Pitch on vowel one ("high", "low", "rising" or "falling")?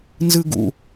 high